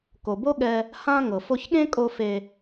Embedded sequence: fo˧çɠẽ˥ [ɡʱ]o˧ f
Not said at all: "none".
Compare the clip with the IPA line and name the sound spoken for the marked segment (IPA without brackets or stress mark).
kʼ